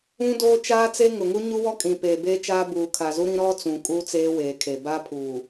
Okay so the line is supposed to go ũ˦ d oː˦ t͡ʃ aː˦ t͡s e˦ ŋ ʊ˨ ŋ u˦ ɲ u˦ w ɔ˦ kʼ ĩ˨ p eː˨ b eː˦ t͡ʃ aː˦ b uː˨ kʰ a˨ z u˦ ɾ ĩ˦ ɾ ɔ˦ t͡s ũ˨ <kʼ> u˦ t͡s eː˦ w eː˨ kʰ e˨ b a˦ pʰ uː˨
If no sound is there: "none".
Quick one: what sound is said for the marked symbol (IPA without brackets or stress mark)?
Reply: kʼ